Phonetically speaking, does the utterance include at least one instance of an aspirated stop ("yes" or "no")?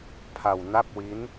yes